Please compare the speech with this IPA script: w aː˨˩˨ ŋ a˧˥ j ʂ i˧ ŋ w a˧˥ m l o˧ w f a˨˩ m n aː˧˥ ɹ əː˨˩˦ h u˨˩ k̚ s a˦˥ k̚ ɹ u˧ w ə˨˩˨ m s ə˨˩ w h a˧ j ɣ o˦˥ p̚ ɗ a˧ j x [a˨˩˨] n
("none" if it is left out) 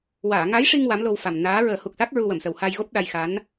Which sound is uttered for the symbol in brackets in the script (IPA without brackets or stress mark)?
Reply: a˧˥